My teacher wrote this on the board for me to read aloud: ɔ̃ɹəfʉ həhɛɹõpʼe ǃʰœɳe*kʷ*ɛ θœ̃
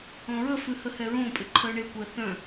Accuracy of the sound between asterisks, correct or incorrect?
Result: correct